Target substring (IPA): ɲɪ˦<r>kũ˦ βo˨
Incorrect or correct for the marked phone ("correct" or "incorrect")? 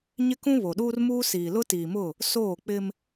incorrect